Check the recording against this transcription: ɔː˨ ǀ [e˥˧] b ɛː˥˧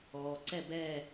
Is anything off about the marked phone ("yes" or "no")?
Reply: yes